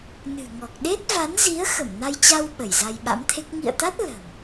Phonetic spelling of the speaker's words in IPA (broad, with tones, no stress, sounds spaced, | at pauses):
n ɨ̤˨˩ ŋ ɔ˨˩ k̚ ɗ e˦˥ t̚ v a˨˦ n z i˨˦ ə̯ x ə˧˩ m n a˧ j t͡ɕ a˧ w ɓ ə˧˩ j z a˧ j ɓ a̰˧˥ m t̪ʰ e˦˥ k̚ ŋ ḭ˧˨ ə̯ t̪ a˦˥ t̚ l ə̤˨˩ m